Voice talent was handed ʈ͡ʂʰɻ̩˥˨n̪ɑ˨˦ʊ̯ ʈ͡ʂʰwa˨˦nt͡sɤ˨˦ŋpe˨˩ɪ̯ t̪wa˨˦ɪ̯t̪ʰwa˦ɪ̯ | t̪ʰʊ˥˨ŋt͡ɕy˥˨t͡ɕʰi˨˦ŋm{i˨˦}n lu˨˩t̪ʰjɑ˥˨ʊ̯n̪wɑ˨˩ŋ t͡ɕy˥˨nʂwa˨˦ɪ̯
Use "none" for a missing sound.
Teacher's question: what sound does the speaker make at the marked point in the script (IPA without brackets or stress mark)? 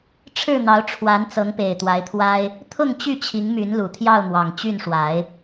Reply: y˨˦